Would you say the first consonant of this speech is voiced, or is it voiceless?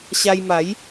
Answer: voiceless